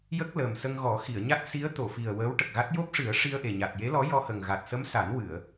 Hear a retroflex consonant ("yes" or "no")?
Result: yes